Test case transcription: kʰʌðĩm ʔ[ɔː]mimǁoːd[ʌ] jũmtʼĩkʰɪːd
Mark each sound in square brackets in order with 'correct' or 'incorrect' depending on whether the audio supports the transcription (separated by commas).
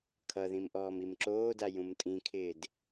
correct, incorrect